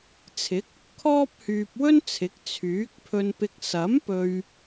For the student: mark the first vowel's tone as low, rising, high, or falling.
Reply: rising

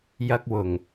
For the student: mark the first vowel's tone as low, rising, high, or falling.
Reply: high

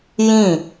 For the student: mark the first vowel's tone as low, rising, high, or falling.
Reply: falling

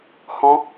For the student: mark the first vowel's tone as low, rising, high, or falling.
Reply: high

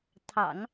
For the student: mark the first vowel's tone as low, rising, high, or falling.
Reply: low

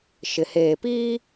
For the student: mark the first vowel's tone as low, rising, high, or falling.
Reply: low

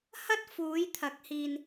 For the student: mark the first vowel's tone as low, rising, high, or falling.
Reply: high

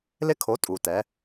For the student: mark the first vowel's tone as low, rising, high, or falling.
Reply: high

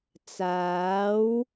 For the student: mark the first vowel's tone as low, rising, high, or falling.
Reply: rising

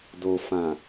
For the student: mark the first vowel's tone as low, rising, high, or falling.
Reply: low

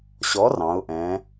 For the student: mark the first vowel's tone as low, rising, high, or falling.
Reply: rising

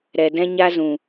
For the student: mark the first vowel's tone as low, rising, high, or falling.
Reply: low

